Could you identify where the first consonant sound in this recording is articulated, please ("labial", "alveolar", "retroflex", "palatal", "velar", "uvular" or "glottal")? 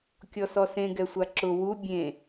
velar